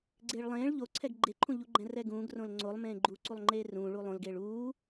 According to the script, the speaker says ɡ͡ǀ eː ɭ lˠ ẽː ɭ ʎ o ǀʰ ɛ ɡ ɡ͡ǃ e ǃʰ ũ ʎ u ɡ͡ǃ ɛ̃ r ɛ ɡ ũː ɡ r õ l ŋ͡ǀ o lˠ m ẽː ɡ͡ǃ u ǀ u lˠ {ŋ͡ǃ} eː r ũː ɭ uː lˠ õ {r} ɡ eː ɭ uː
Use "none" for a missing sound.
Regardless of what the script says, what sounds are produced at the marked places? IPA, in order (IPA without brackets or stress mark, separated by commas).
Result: ŋ͡ǃ, l